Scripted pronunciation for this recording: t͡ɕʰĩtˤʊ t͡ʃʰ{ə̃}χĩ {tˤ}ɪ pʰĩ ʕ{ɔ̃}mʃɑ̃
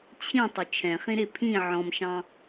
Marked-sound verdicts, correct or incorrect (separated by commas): incorrect, incorrect, correct